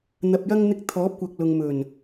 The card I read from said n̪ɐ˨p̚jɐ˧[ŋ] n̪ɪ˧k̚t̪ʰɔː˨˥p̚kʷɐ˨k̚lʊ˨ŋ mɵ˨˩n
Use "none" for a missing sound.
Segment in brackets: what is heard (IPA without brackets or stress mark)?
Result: ŋ